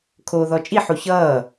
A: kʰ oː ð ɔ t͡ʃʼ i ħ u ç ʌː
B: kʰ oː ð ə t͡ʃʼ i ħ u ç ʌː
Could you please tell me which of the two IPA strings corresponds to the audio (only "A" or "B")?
A